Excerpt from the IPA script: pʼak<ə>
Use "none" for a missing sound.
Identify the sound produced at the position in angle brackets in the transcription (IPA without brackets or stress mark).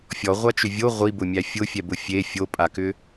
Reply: ʏ